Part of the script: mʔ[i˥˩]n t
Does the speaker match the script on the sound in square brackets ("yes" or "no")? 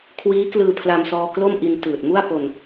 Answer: no